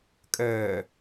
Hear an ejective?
yes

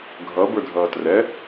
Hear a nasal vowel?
no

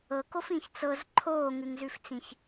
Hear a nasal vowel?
yes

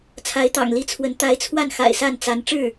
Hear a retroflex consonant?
yes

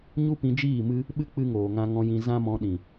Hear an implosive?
yes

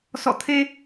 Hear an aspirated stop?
yes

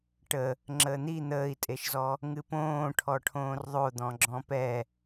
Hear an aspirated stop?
yes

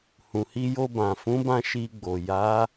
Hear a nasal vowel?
yes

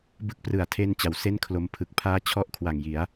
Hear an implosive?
no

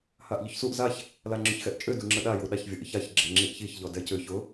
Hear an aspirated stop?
no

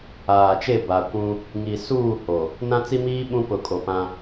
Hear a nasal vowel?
yes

